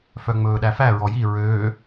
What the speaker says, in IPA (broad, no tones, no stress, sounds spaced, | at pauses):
f œ ŋ͡m ɵː ɗ æ f æ ɹ ɔ j i ɹ øː